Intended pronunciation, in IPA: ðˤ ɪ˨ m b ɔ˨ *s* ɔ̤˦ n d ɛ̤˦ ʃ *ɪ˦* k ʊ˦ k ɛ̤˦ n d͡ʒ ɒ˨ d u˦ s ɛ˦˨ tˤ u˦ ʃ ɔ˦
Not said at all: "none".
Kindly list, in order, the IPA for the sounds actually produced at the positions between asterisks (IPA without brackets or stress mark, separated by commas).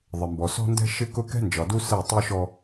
s, ɪ˦